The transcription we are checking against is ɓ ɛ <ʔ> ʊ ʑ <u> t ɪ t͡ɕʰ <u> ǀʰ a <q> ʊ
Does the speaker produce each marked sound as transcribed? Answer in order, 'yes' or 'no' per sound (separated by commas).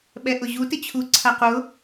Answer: yes, yes, yes, yes